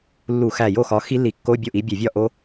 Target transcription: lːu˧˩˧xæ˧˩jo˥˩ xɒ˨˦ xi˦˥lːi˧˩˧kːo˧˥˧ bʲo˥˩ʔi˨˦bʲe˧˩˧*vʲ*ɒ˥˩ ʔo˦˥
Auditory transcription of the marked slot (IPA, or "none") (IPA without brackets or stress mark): vʲ